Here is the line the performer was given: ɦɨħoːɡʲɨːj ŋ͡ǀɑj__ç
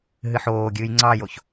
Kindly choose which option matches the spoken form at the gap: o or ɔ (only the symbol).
o